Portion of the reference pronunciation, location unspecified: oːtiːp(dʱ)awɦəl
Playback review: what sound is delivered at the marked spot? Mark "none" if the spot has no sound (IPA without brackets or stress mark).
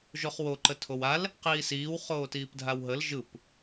dʱ